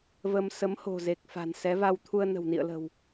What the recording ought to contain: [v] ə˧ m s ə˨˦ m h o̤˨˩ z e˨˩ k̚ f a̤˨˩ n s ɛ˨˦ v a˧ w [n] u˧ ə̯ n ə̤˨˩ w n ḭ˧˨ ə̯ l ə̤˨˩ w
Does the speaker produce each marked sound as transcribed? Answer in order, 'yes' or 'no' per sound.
yes, no

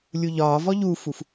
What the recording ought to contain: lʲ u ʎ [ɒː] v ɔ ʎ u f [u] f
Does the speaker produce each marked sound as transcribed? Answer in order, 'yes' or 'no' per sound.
yes, yes

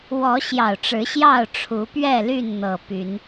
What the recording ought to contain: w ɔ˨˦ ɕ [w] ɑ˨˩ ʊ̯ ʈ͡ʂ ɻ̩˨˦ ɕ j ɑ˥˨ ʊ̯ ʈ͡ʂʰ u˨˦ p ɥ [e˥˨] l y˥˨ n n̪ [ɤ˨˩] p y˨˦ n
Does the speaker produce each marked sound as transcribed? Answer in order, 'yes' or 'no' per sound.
no, no, yes

